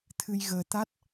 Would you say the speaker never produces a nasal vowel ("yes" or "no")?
yes